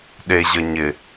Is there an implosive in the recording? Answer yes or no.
yes